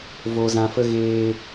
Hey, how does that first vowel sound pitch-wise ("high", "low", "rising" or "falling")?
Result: low